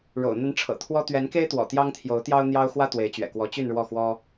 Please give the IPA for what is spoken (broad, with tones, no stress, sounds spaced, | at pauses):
ɻ o̰˨˩ ʊ̯ n̪ ə˧˥ n ʈ͡ʂʰ ɤ̰˨˩ t̪ʰ w ɔ˥ t̪ ɥ ɛ˧˥ n k e˥ ɪ̯ t̪ w ɔ̰˨˩ t̪ j ɑ˥ ŋ t̪ʰ j o˧˥ ʊ̯ t̪ j ɑ˥ ʊ̯ n̪ j ɑ˥ ʊ̯ x w ä˥ t̪ w e˧˥ ɪ̯ t͡ɕ ɥ ɛ̰˨˩ k w ɔ˧˥ t͡ɕ y˥˧ n ɻ w ɔ˥˩ x w ɔ˥